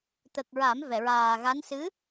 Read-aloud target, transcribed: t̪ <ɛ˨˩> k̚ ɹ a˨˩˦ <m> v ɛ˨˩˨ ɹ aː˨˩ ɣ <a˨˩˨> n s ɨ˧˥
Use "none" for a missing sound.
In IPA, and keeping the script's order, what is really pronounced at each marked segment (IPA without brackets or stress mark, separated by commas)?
ə˨˩, m, a˧˥